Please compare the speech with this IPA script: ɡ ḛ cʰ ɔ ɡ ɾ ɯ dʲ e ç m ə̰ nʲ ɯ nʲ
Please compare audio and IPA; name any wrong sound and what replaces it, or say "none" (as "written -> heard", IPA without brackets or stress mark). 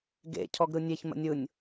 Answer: dʲ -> nʲ